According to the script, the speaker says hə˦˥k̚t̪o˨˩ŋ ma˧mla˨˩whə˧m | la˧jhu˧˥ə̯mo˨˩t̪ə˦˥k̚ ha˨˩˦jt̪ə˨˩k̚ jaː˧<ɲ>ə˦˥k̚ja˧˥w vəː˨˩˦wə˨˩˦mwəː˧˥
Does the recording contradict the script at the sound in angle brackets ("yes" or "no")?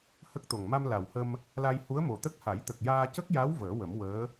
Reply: yes